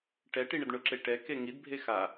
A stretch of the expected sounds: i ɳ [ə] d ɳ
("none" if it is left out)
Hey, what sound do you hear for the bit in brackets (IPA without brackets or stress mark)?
ə